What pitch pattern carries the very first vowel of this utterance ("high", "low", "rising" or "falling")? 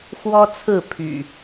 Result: high